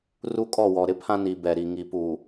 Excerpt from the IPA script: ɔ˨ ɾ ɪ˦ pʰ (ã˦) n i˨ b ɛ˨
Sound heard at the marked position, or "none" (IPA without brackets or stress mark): ã˦